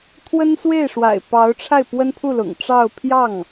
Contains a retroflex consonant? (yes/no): yes